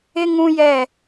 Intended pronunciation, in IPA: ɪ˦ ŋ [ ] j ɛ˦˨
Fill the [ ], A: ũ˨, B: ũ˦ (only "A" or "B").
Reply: B